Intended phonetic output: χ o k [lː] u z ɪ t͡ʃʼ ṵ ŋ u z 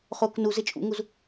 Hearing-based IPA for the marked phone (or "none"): n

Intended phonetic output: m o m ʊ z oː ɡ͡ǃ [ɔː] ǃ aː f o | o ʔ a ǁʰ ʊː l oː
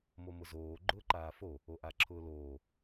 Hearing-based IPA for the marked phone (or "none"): ʊː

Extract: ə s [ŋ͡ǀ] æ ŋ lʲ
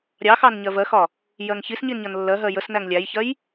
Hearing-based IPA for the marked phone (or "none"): n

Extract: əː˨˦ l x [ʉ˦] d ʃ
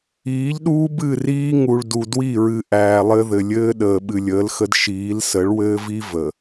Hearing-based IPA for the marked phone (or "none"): ə˦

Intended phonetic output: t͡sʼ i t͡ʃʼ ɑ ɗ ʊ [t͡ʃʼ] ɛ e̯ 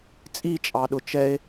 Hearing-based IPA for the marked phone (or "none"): t͡ʃ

